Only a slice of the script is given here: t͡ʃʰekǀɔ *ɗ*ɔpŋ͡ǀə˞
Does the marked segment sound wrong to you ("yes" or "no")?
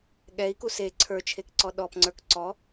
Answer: no